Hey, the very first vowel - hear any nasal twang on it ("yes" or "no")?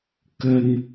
no